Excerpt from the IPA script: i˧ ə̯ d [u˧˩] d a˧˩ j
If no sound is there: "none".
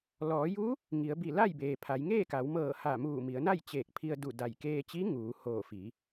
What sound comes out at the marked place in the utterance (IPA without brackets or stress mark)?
u˧˩